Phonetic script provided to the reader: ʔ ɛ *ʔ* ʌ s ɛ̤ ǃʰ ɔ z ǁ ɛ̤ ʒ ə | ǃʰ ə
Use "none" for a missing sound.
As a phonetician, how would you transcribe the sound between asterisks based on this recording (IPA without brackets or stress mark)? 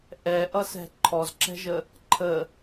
ʔ